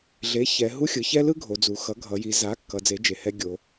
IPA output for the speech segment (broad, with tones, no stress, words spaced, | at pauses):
ɮe˩˥çɛ˩˧ ɦu˦xʲɯ˩˧ çɛ˦ lɯ˦ ɡʱo˩˧d͡zu˩˧xʌ˩˥ ɡʱʌ˩˧ji˩˧ za˩˥ kːʌ˩˧d͡ze˩˥ d͡ʒe˩˧hɛ˦ ɡʲo˩˧